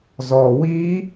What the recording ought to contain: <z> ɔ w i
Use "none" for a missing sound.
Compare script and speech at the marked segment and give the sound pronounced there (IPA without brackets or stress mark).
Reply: z